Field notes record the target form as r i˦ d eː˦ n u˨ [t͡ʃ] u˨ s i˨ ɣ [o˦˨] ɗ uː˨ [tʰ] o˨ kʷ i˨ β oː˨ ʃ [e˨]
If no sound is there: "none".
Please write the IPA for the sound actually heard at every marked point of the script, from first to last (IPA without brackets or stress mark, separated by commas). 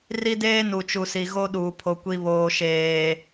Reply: t͡ʃ, o˦, pʰ, eː˨